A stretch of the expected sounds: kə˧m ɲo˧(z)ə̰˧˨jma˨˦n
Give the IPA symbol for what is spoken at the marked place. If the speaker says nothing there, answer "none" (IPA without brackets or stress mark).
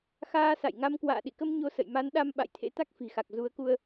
s